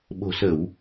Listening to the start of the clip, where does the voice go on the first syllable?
low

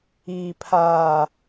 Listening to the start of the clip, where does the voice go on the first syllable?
low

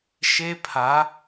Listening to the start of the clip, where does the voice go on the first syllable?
high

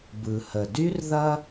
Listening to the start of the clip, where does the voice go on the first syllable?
low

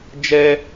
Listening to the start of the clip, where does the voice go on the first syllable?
high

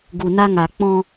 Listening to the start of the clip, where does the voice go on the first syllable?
low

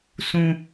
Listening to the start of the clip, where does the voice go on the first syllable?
high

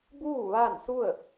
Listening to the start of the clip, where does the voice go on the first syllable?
falling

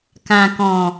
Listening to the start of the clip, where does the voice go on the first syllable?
low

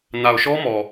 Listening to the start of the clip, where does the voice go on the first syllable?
low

